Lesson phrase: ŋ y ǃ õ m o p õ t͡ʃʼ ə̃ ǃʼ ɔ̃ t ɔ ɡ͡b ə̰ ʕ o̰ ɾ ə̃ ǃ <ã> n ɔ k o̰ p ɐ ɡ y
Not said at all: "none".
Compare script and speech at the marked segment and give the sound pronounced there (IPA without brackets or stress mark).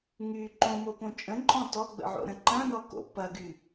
ɐ̃